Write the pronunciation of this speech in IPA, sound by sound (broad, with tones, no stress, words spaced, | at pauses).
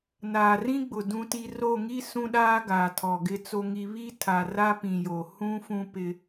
naː˨rĩ˦ɡ͡bʊ˨ dũ˦ti˦ ro˦˨ŋi˦ sũ˦ɗaː˦ɡaː˨ tʰɔ˨ɡɪ˦t͡so˦ŋi˦ βi˦tʰa˨ ra˦pĩ˨jo˨ hũ˦fũ˦pɪ˦